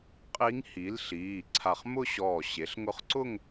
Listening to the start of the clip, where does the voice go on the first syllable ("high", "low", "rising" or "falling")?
rising